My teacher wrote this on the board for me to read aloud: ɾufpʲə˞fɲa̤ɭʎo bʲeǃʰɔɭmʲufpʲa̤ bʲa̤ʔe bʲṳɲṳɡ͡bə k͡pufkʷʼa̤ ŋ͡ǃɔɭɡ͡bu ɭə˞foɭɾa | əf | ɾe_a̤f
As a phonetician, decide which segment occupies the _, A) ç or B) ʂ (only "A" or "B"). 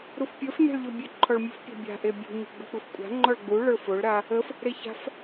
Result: A